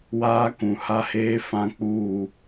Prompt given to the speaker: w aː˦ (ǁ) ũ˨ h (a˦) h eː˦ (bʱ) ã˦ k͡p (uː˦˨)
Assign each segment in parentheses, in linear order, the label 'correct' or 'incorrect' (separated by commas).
incorrect, correct, incorrect, correct